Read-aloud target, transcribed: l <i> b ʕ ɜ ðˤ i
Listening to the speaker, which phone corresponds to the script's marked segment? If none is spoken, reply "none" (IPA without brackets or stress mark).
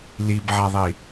i